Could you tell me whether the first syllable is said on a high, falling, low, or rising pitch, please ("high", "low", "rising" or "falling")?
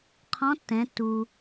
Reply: rising